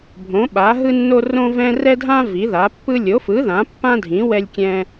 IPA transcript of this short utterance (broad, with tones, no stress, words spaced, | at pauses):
bʱõ˩˥ɓa˩˥ɦɯ˦nːo˦ rõ˦vɛ̃˦ rɛ˦dʱã˦ vi˩˥ða˩˥pːɯ˦ lʲo˩˥fɯ˩˥ ðã˩˥pːã˦dʱĩ˩˥ wɛ˦lʲkʲɛ̃˦